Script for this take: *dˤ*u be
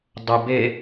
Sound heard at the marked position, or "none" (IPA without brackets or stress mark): dˤ